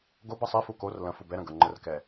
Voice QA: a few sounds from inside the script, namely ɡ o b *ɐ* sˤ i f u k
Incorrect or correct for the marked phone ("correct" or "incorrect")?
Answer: correct